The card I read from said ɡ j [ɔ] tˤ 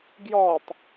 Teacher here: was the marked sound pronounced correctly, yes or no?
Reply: yes